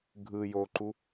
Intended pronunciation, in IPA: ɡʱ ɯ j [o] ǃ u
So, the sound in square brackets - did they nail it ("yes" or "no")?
yes